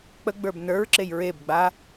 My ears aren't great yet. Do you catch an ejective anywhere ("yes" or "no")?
no